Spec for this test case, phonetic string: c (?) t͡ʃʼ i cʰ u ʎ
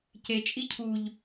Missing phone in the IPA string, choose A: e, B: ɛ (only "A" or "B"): A